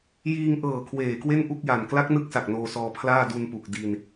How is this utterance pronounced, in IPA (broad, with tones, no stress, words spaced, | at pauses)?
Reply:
jiː˧ŋʔɤː˨˩ kʰweː˨˩kwe˥˩n ʔu˥˩k̚ja˨˩n kla˦˥k̚nɯ˦˥k̚sa˨˩k̚ noː˧sɔː˧pʰlaː˥˩ du˧npu˨˩k̚ di˧n